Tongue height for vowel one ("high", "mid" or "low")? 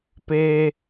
mid